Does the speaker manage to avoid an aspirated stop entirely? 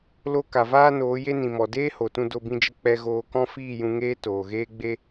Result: yes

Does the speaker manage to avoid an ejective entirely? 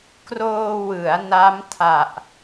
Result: yes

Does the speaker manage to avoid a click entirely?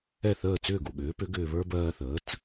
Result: yes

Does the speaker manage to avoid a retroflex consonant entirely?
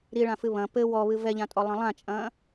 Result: no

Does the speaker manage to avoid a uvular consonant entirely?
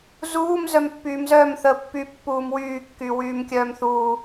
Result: yes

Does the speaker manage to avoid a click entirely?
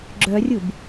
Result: no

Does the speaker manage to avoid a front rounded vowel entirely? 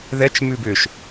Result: no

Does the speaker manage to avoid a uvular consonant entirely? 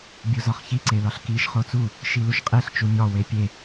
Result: no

